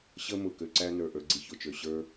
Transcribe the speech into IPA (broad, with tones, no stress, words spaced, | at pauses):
ɕə˦mʊ˨ kø˧ǀæ˦nə˞˨ ʔə˞˧ɡ͡ǀi˧ çʊ˨t͡ʃø˨ ɕə˞˦